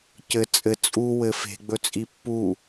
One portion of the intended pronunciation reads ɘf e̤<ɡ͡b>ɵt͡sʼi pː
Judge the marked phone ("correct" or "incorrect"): correct